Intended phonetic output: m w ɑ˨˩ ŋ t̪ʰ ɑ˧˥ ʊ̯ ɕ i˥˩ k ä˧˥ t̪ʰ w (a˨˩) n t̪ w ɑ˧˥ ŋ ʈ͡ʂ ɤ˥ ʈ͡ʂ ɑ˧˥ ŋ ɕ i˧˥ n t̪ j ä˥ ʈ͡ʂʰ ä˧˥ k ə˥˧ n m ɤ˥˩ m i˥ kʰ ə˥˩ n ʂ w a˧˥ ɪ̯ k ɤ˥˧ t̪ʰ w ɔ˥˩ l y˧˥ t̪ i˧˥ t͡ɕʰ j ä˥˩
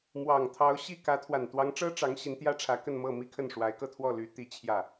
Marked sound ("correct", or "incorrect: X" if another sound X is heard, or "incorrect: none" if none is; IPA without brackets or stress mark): correct